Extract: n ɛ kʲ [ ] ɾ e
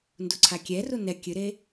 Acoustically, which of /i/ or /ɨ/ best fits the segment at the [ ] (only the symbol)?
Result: ɨ